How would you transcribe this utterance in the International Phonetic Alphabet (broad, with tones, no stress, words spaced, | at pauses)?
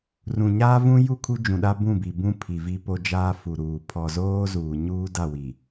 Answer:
rũ˨ɲaː˦vũ˦ ju˦˨kʰu˦d͡ʒũ˨ɗa˦ bũ˦˨bi˨bũ˦ pʰi˨vi˦ po˦d͡ʒaː˦ fu˨ɾuː˨ pʰɔ˨zoː˦zuː˨ ɲuː˦da˦˨wi˨